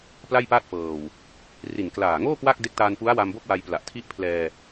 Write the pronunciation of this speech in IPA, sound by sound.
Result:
p l a˥˩ j p aː˥˩ t̚ f ɤː˨˩ w | r i˨˩ n k l aː˨˩ ŋ oː˥˩ k w a˥˩ k̚ d e˦˥ k̚ t aː˧ n f u˦˥ a̯ w a˧ m b o˥˩ k̚ w a˧ j p l a˨˩ ʔ tʰ i˥˩ ʔ pʰ l ɛː˧

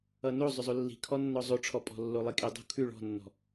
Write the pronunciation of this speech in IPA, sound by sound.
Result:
ʌ n o zˤ ʏ zˤ o lː i̤ kʰ ɔ nː ɔ zˤ o ʈ͡ʂʰ ɔ pʼ ɔ̤ lː o lˠ i kʼ i dˤ o̤ kʰ ʉ ɭ ɔ̤ nː ɔ̤

